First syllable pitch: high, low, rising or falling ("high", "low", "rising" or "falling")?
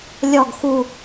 falling